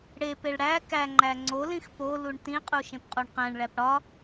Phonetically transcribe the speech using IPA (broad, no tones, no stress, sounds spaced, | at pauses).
ɽ e p e ɭ ɽ æ k æ ŋ͡ǃ æ ŋ͡ǀ o l ĩ x p o l u ɳ t ĩ qʼ u ʃ ẽ p qʼ o ɳ q æ̃ ɳ ɭ æ p ɽ ɒ